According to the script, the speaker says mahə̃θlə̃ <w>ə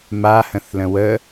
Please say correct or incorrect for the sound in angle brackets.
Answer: correct